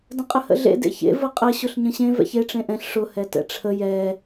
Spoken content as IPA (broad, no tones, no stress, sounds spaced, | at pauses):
d ə̃ qʼ ə h ə̰ ɮ ḛ d ḛ ç ḛ v ə qʼ ə ɕ ʊ ɬ ɲ ə̃ ɕ ẽ v ɛ̰ ç e ʈ͡ʂ ẽ ʔ ɛ̃ ɬ ʂ ʊ h ɛ t ɛ̰ ʈ͡ʂʰ ə j ɛ